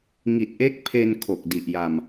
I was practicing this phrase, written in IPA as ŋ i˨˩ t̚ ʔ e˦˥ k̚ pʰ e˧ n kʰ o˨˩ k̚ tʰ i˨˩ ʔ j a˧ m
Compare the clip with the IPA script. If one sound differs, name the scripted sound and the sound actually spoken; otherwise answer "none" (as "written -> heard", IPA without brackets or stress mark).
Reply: tʰ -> d